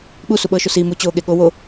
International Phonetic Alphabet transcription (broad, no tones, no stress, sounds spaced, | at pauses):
ɓ u s u ɓ ɤː ʃ o s iː m u t͡ɕ oː ɠ e ɠ o w o